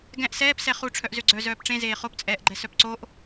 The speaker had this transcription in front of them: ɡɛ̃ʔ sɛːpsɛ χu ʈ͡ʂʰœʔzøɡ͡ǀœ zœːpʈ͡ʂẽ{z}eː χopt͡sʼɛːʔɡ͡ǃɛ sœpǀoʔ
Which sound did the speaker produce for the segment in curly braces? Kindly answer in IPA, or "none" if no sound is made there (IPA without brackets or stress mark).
z